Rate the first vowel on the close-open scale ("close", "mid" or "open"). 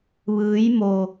close